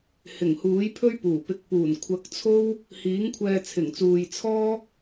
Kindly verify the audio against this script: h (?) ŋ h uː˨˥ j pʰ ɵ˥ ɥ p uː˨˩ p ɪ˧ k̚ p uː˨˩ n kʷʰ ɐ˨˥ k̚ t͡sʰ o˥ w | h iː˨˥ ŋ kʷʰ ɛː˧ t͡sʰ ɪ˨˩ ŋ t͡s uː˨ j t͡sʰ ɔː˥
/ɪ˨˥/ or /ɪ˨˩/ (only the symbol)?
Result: ɪ˨˩